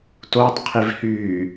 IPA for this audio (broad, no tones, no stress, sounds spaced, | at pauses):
t o tˤ qʰ i v h yː